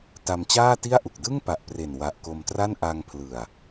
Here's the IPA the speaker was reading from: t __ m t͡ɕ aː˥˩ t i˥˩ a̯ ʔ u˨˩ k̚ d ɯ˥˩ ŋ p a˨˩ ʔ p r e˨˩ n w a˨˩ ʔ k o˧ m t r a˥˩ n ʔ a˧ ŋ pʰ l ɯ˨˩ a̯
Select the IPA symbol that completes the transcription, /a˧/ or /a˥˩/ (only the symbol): a˧